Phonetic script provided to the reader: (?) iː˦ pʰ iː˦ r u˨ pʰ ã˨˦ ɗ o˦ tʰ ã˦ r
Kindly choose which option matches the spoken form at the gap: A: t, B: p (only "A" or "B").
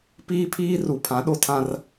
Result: B